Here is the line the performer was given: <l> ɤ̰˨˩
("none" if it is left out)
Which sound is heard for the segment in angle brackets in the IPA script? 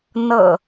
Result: n̪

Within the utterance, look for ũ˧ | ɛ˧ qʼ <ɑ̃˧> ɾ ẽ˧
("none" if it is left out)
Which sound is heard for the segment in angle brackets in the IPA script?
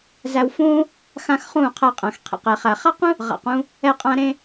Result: ã˧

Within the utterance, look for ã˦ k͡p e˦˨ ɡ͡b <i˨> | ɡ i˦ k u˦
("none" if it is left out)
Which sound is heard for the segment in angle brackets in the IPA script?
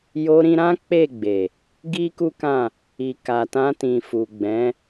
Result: e˨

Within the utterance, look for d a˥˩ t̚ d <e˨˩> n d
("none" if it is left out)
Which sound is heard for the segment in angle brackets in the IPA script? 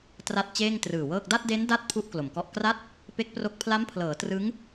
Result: e˦˥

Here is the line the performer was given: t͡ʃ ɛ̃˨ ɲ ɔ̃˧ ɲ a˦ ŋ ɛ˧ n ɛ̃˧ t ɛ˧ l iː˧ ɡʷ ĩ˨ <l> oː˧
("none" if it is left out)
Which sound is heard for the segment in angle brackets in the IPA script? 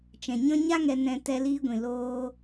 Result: l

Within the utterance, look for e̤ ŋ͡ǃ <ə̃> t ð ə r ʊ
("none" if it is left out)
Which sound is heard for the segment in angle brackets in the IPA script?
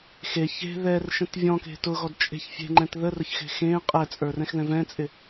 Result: ɛ̃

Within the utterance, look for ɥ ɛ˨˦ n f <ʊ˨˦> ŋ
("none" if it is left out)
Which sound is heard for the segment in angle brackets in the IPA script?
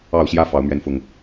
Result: ʊ˨˩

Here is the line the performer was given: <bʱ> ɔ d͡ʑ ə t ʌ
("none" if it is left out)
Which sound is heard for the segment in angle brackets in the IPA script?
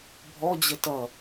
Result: bʱ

